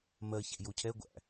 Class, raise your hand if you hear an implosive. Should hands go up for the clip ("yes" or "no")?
no